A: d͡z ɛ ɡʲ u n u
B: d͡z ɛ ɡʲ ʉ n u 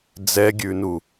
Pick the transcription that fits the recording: B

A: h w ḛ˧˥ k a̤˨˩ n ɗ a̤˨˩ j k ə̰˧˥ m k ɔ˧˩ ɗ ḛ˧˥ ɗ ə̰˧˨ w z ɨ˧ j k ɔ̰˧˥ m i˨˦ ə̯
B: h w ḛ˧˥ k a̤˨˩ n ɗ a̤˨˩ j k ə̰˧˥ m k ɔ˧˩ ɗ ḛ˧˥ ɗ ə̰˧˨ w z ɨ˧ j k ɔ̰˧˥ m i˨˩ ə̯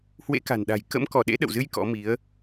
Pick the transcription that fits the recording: A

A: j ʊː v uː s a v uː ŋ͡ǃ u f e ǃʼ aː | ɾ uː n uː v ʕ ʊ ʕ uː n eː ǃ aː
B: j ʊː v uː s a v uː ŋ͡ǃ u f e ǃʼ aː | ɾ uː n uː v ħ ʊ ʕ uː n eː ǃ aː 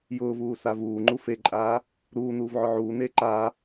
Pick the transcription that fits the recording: A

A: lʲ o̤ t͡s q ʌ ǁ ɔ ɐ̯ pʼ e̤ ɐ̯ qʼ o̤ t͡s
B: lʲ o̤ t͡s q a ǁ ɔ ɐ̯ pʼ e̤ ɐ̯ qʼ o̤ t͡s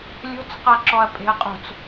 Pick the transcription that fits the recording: B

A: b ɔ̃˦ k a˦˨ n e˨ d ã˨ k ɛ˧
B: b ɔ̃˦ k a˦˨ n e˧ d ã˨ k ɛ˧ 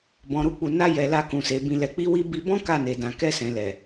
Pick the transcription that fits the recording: A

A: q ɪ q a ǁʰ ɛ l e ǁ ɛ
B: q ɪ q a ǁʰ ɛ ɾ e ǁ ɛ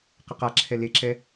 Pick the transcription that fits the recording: A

